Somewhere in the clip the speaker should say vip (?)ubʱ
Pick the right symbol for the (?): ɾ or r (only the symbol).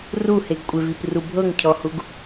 r